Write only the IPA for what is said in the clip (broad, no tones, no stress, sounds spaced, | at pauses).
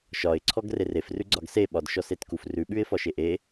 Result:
ʃ ɒ ɪ̯ ǀʰ ɔ ɡ r e r e f r ʉ ɡ͡ǀ ɒ ɡ s e ɓ ɒ d ʃ ɔ s e t k u f r ʉ ɓ ʉ ɪ̯ f ɒ ʃ e ʔ e